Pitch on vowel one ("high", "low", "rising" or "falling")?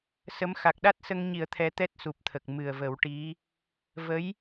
rising